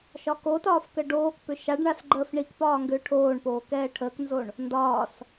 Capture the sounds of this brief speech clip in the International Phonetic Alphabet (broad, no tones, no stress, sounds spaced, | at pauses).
ʃ ɒ k o t ɒː f k ə ɖ oː k p ʏ ʃ a ɖ ɳ a s ɡ͡ǃ əː f ɳ i k p ɒː ŋ ɡ ʏː ʈʰ oː ɳ p oː k ɛː ʈʰ əː k n z o ɳ | n d ɒː s